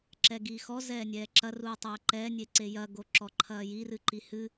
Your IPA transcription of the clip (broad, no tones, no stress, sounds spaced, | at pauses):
ǁ ɛ ɡ iː x ɔ z ɛː nʲ ɛː ǁ ɐ r uː tˤ ɐː ǃ ɛː nʲ e ǀ e j ɐ ɡ o ǁ ɔ ǃʰ ɐː j i r ɨ ǃ i h ɨ